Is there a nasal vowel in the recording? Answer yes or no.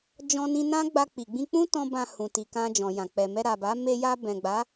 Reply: yes